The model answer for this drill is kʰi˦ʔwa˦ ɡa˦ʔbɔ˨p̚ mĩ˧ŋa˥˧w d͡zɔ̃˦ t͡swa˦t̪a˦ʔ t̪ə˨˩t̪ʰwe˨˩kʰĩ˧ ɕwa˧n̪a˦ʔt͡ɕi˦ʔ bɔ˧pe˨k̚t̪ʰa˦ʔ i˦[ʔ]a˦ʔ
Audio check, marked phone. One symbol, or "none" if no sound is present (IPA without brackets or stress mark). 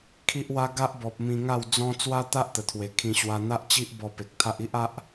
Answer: ʔ